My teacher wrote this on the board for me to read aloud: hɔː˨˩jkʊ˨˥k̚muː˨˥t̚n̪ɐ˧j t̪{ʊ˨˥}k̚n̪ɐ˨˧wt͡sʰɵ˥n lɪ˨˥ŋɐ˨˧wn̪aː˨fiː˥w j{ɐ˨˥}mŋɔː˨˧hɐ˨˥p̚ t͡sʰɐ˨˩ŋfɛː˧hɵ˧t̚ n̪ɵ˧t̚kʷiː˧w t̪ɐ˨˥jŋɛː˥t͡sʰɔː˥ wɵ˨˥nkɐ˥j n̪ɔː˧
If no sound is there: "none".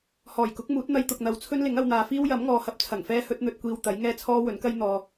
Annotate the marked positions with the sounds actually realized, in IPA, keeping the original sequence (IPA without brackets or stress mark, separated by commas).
ʊ˨, ɐ˨˥